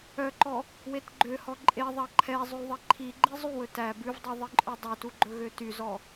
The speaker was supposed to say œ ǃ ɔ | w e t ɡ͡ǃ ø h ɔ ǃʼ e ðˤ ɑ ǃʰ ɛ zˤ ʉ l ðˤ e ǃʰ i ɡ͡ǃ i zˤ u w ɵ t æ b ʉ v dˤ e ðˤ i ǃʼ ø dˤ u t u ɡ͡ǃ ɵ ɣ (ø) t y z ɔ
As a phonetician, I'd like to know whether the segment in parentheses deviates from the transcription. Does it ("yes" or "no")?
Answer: no